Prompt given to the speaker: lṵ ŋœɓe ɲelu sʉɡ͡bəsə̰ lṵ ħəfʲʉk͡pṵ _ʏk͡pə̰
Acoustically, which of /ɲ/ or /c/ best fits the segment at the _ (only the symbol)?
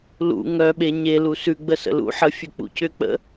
c